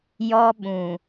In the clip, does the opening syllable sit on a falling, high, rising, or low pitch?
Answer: high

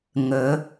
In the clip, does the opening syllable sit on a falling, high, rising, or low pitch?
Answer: rising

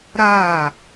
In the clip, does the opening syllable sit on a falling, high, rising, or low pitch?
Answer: falling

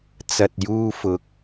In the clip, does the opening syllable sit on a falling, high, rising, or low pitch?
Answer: low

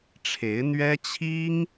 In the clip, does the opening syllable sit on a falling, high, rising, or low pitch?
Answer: rising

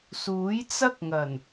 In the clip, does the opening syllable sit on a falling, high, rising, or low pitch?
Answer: rising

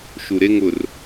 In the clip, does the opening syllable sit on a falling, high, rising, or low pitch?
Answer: low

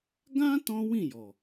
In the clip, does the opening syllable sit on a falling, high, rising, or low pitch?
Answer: high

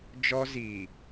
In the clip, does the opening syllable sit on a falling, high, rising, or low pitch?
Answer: high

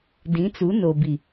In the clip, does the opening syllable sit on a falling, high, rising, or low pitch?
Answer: rising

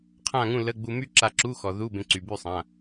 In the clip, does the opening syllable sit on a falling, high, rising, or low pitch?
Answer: falling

